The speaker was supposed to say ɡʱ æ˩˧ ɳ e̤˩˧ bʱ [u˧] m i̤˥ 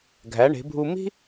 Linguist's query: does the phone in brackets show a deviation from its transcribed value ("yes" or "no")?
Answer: no